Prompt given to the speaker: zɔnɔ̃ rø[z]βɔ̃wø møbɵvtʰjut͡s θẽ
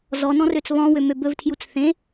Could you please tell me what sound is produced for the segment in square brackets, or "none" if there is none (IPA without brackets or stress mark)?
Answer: t͡s